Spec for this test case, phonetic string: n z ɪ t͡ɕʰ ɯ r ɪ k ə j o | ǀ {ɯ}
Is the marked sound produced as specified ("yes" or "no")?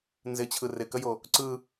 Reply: yes